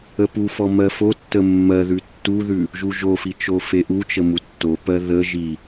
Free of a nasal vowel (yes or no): yes